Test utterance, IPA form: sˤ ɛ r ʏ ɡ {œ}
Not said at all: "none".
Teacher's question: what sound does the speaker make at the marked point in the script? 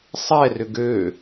ø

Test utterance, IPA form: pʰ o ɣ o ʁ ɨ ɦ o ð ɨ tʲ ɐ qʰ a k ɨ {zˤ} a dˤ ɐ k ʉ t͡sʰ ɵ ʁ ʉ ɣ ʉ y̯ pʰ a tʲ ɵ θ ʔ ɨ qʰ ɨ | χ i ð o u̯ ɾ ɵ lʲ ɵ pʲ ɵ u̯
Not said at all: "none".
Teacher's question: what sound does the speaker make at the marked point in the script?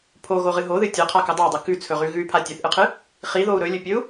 dˤ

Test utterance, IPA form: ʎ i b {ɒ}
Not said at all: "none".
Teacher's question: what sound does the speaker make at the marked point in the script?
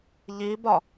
ɒ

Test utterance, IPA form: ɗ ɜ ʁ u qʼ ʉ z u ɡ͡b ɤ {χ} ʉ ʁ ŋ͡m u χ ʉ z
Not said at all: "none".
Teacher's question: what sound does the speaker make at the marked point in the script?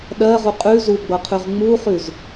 qʰ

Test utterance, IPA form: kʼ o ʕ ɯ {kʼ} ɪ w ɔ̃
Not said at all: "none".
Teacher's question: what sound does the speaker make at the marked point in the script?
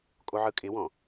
kʼ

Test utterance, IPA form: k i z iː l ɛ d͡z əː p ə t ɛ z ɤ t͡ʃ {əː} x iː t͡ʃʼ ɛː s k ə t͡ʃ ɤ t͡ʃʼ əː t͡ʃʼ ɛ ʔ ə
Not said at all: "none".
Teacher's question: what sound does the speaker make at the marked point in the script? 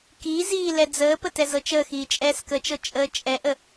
əː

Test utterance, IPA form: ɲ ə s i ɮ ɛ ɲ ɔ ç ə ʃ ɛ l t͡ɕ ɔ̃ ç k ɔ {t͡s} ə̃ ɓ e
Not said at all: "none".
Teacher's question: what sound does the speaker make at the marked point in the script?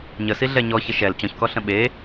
ɬ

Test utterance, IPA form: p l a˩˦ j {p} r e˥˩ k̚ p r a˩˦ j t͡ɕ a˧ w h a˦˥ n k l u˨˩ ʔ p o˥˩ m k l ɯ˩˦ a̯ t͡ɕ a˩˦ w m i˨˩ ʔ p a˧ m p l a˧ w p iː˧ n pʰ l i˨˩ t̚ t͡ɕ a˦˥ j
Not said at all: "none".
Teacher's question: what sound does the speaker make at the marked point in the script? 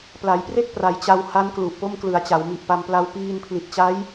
p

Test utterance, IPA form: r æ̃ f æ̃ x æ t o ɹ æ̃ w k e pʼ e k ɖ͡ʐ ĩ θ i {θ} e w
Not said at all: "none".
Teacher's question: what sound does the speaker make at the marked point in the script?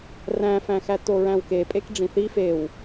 f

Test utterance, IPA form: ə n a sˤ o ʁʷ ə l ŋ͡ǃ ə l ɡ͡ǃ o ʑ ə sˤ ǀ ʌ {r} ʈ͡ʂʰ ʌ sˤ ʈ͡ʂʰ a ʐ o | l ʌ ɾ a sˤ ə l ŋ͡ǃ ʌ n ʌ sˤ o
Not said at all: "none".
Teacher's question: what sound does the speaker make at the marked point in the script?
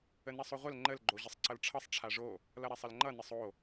l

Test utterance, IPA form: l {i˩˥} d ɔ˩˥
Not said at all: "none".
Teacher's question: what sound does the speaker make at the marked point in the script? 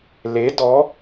e˩˥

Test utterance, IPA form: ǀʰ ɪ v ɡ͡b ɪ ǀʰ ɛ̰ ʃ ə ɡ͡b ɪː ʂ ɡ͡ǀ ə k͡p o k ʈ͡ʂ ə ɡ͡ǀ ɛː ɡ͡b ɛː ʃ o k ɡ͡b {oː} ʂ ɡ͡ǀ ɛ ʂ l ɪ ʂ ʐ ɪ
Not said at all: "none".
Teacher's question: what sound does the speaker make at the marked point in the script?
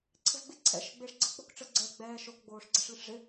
oː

